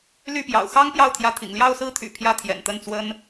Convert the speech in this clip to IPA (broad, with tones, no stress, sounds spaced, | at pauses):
l y˥˩ p j ɑ̰˨˩ ʊ̯ x ɑ˥ ŋ p j ɑ˥˩ ʊ̯ t̪ʰ j ä˧˥ t̪ʰ ḭ˨˩ ŋ l j ɑ˥˧ ʊ̯ s ɹ̩˥˩ t̪ʰ y̰˨˩ pʰ j ä˥˩ t̪ʰ j ɛ̰˨˩ n t̪ ə˥˩ n t͡s w ə˥ n